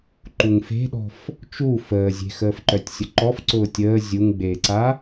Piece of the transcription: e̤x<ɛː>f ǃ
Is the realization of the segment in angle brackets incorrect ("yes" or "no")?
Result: yes